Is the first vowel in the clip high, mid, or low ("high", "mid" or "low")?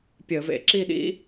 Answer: mid